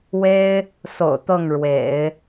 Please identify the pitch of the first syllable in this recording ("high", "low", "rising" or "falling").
high